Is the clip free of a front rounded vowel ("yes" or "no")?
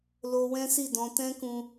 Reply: yes